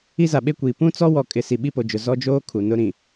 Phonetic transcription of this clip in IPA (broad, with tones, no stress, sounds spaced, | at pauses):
i˦ z a˨ ɓ e˦ kʷ iː˨ p ũ˦ t͡s ɔ˦ w ɔ˨ kʼ ɪ˨ s i˨ ɓ i˦ p o˨ d͡ʒ ʊ˨ z ɔ˦ d͡ʒ oː˦ kʰ u˨ n ʊ˦ ɾ ĩ˨